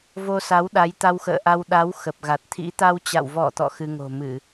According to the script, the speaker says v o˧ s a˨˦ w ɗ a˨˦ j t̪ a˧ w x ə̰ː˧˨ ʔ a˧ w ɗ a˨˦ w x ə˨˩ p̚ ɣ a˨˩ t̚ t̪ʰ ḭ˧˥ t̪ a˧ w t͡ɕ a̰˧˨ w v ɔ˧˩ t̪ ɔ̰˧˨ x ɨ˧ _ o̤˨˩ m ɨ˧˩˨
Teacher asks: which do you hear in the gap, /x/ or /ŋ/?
ŋ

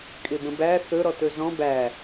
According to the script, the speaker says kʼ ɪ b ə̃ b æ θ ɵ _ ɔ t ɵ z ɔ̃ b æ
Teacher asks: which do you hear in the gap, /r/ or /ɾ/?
ɾ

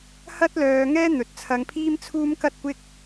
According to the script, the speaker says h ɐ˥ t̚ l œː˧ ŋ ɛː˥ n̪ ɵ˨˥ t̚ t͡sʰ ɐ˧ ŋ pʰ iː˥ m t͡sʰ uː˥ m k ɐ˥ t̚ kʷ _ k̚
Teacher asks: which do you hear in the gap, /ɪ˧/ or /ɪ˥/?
ɪ˥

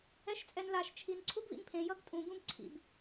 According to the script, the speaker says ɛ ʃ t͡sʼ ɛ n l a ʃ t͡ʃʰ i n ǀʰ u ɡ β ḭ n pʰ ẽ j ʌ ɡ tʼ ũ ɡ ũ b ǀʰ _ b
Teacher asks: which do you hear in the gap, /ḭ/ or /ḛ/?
ḭ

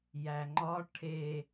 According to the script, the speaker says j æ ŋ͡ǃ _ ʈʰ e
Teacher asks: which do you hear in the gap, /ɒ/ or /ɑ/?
ɒ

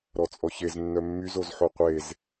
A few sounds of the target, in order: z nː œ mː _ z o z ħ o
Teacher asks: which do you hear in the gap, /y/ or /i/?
y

